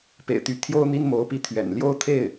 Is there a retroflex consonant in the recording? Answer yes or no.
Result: no